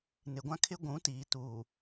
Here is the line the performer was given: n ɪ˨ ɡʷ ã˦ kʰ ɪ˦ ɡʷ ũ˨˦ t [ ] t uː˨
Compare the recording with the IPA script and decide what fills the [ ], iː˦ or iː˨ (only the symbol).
iː˨